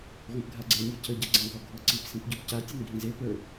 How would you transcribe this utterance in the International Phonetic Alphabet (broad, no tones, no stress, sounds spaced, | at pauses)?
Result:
ʁʷ ẽ p ɡʱ a ɡ͡ǀ e nʲ ɤ cʰ ə ɟ a ɡ͡ǀ ã ɡ ɔ ɡʱ ɤ ǀ i p s ĩ p ɟ ɔ p c a tʲ ʊ n ɡʱ ĩ z e p ə˞